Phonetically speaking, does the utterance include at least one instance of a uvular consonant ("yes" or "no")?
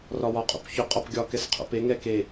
yes